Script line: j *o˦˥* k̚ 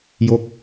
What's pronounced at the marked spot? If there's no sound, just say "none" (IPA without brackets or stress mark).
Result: o˦˥